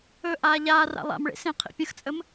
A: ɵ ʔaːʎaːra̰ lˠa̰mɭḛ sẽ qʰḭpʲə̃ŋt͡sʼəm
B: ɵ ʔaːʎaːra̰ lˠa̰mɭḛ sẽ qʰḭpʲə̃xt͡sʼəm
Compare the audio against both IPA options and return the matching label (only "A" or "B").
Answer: B